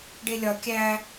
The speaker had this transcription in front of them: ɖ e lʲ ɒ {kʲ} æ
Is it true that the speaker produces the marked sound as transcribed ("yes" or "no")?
yes